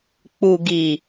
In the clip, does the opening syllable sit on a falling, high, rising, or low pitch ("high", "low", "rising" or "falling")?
low